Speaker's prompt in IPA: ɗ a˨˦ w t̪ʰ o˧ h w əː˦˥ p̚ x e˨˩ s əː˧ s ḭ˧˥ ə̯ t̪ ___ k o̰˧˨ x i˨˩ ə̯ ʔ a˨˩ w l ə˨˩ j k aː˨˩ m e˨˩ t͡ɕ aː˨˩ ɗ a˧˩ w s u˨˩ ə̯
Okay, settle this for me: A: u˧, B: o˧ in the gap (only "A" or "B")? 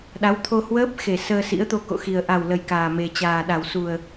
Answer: B